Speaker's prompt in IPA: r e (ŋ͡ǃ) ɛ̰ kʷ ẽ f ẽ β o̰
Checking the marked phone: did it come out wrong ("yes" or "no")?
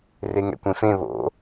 yes